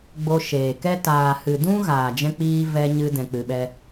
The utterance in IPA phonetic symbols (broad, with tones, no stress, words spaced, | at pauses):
ɡ͡bo˧ʃeː˨kɛ˦ taː˨hɨ˨ dũ˦ ɣaː˨d͡ʒɛ̃˧k͡piː˧ vɛ˧ɲɨ˧ dɛ̃˧k͡pɨ˧ɓɛ˦